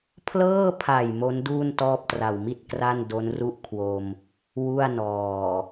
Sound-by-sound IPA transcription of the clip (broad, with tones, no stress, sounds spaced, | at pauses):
pʰ l ɤː˥˩ pʰ a˨˩ j m o˦˥ n d uː˥˩ n t ɔː˥˩ p̚ t r a˨˩ w m i˥˩ t̚ k r a˥˩ n d o˦˥ n r u˥˩ ʔ kʰ w o˧ m | w u˥˩ a̯ n ɔː˨˩